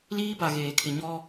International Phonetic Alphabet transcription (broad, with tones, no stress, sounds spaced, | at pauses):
l iː˦ b a˨ ɣ eː˨ kʰ ɪ˨ ɲ ɔ˦